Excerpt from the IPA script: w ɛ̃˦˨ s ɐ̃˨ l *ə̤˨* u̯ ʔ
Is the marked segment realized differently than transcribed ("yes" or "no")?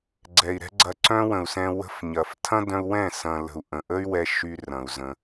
no